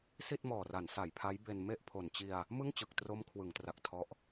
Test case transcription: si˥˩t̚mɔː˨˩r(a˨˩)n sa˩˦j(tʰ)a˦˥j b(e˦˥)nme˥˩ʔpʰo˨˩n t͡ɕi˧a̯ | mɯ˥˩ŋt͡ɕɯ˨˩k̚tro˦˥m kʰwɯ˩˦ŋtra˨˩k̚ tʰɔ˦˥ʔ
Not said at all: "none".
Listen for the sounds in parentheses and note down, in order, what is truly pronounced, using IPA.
a˩˦, pʰ, e˧

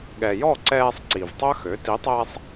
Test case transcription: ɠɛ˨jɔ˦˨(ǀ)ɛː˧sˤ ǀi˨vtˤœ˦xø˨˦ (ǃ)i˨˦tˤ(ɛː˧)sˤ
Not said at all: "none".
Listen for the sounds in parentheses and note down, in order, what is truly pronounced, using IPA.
ǀ, t, ɛː˧

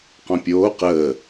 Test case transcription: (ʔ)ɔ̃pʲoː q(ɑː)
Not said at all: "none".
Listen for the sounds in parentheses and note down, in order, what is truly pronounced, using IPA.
q, əː

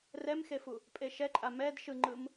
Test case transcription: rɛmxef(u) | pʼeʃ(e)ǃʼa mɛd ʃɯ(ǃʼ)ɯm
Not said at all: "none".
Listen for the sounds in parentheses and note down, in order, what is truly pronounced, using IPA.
u, ɛ, ŋ͡ǃ

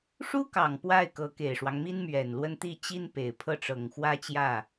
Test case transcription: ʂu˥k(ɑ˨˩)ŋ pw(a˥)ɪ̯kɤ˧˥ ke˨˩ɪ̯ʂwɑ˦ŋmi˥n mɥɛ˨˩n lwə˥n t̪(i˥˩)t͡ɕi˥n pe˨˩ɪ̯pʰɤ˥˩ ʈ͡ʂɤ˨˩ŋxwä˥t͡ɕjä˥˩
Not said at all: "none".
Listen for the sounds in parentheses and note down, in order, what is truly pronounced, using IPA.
ɑ˨˩, a˥˩, i˥˩

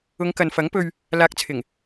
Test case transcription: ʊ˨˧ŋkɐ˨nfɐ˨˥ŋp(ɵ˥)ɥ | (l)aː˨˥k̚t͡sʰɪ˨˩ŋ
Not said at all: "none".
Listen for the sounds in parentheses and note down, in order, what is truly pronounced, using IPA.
ɵ˧, l

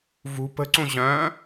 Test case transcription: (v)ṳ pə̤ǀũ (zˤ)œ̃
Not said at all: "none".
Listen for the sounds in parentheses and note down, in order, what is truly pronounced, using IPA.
v, ʑ

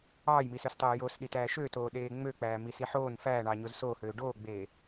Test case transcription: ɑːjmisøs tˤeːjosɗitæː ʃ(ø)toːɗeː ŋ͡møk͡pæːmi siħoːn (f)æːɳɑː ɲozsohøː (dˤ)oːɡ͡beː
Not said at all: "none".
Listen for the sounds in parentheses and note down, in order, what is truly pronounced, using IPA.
ø, f, ɖ

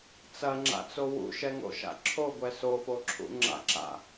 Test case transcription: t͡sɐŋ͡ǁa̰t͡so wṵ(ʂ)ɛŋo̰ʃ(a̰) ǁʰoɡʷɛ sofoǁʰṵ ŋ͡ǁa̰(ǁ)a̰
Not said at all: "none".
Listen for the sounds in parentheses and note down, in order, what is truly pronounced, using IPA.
ʃ, a̰, ǁ

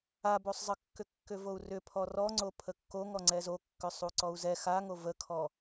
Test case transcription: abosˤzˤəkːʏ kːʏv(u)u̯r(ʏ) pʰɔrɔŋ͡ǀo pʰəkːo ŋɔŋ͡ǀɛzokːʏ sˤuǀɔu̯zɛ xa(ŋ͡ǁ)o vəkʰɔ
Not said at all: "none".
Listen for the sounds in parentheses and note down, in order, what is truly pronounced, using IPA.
o, ʏ, ŋ

